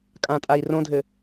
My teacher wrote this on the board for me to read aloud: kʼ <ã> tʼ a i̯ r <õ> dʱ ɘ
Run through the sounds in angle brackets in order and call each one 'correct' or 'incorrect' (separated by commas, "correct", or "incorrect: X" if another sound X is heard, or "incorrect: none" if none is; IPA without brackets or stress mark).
correct, correct